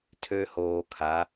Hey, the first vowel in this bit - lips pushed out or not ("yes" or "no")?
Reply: yes